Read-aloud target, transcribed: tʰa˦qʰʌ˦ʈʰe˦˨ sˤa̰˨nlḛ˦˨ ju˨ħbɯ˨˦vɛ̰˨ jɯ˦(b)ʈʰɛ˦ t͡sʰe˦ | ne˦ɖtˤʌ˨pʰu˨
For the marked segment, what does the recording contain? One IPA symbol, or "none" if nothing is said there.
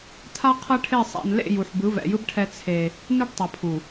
b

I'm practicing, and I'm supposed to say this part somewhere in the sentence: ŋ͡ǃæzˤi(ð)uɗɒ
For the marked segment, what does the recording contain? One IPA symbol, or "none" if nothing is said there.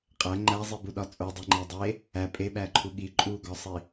b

